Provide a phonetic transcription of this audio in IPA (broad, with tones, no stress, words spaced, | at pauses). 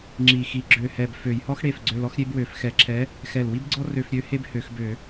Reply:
ŋ͡ǁi˧˩ xi˧˩ ɡ͡ǁø˧˩hɛ˧˩b fø˧˩˧jhɔ˥xɽe˧˩fɡ͡ǀø˧l ɔ˥xɾʲe˥bwø˧˩˧f xɛ˧˩˧ǁʰɛ˨˥ | xɛ˧˩lwi˥bɡ͡ǀɔ˥ rø˧f ɾʲø˨˥ he˥bhø˧˩˧xbø˧˩˧